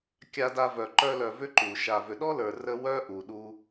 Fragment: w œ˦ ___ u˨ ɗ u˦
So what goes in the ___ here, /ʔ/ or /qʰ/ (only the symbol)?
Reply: ʔ